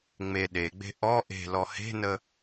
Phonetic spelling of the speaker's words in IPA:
ŋ͡m e ɗ e ɡ͡b e̤ ʔ ɔ ʔ e̤ l ɔ h e̤ n ə

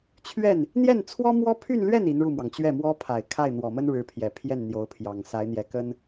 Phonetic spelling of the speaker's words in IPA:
t͡ɕʰ ɥ ɛ˥˩ n | n̪ j ɛ˥˩ n t͡sʰ w ɔ˥ m w ɔ˥ pʰ y˥˧ n l ɥ ɛ˥˩ n i˧˥ n ɻ u˥˩ m w ɑ˩ ŋ t͡ɕ ɥ ɛ˥˩ m w ɔ˥ pʰ a˨˩ ɪ̯ kʰ a˥˩ ɪ̯ n̪ w ɔ˨˩ m ə˥ n ɻ ɻ̩˧˥ pʰ j ɛ˨˩ pʰ j ɛ˥˩ n n̪ j o˧˥ ʊ̯ pʰ j ɑ˨˩ ŋ s a˧˥ ɪ̯ n̪ j ɛ˧˥ k ə˥ n

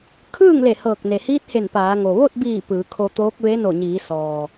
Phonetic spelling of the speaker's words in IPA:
kʰ ɯː˥˨ ŋ l e˧˩ h ɤː˧˩ k̚ n e˩ h iː˧˥ t̚ h e˧˩ n p aː˩˧ ŋ o˩ ʋ o˥˨ t̚ b iː˧˩ p ɯː˩˧ kʰ o˧ t̪ oː˧˥ k̚ ʋ e˧˥ n o˧˩ ɲ iː˩˧ s ɔː˩

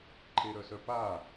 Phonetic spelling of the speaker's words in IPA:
ǃʰ e ɾ œ s œ p a

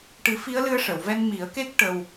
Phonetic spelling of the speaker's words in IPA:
ʈ ɨ˨˩˦ f i˧˥ ə̯ l ɨ˧ ə̯ ʂ ə˨˩˨ w v ɛ˧ n m i˨˩˦ ə̯ k e˦˥ k̚ ʈ ə˧ w

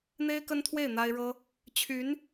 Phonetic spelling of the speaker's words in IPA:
n̪ e˥ ɪ̯ k ə˥ n t̪ʰ w e˥˩ ɪ̯ n̪ a˥ ɪ̯ ɻ ɤ˥ | t͡ɕʰ y˧˥ n

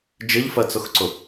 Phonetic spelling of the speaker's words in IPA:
d͡ʒ ɪ ʎ f ɜ t͡s ʊ x ǀ ʊ

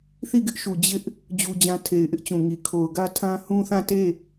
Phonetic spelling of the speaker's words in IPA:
θ i˦˨ ɡ ɪ˦ ʔ ʃ u˨ d͡ʑ ɪ˦ ʔ | d͡ʑ u˦ d͡ʑ ã˦ tʰ e˨ ɪ̯ ʔ ɪ˦ ʔ t͡ɕ ũ˨ ŋ i˨ kʰ o˨ ʊ̯ ɡ ä˦ tʰ ã˦ h ũ˦ θ ã˦˨ t e˦˨

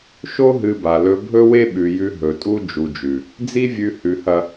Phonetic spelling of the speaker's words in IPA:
ʃ o˦ ɦ ɨ˧ b a˨ l ɵ˧ bʱ ɵ˦ w e˦ ɓ ʉ˨ j ʉ˧ ɦ ɵ˨ tʼ u˦ d͡ʒ u˨ d͡ʒ ʉ˨ | d͡z i˦ vʲ ʉ˧ h ʉ˨ h ɐ˨

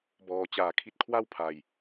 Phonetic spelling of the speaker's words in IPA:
b ɔː˨˩ t͡ɕ aː˨˩ kʰ i˦˥ t̚ kʰ w a˥˩ w pʰ a˨˩ j

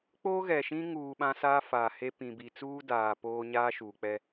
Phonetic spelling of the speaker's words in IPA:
k͡p oː˦ ɣ ɛ˨ ʃ ĩ˦ ŋ uː˨ ɓ ã˦ s aː˦ f aː˨ h e˦ p ĩ˨ b i˨ t͡s uː˦ d aː˨ p oː˦ ɲ aː˦ ʃ uː˨ k͡p ɛ˦

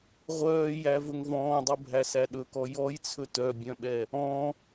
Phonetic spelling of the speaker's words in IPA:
ʁʷ œː j æ v ɵ ŋ v ɔ̃ː dˤ u bʱ æ s æ ɗ ɵ k ɔ j ɔ j t͡sʰ ɵ t œ bʲ œ̃ ɓ ɛ | ɔ̃

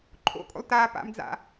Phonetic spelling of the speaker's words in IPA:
ǃʰ o̰ kʼ o̰ lˠ t aː p a̰ m d͡z a̰

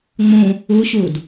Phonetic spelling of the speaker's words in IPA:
ŋ͡m ũ | u ɕ u d

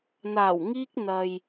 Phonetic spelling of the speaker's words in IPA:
n̪ aː˨˩ w ŋ iː˧ k̚ n̪ ɐ˨ j

